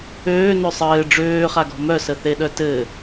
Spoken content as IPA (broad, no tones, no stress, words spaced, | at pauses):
øːnø sˤɘː ɖ͡ʐøːχaɡɔ̤ mœsəθeɗœ tɘ